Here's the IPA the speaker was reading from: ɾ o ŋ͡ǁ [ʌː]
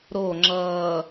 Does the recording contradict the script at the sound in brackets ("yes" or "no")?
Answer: no